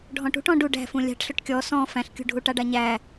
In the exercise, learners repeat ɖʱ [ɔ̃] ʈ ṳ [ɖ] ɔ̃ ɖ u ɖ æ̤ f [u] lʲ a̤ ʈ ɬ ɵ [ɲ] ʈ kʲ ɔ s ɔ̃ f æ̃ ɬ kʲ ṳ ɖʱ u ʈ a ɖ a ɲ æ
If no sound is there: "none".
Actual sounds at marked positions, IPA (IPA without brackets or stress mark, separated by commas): ɔ̃, ʈ, ũ, none